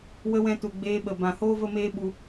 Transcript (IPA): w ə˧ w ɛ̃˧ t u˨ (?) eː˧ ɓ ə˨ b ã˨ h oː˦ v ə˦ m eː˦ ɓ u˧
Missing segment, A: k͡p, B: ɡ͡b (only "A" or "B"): B